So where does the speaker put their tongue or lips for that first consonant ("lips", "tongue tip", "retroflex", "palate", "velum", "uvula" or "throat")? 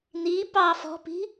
tongue tip